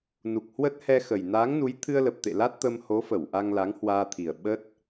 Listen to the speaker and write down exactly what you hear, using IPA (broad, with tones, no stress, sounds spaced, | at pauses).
n u˨˩ k̚ h w ə˦˥ t̚ h ɛ˧ x ə˨˩ j n aː˨˦ ŋ n u˨˦ j t̪ʰ ɨ˧ ə̯ l ə˨˩ p̚ t̪ ḛ˧˨ l a˦˥ t̚ t̪ ə˧ m h o˨˦ f ə˧˩ w ʔ a˧ ŋ l a˨˦ ŋ h w aː˧ t̪ʰ i˨˩ ə̯ ɓ ə˦˥ t̚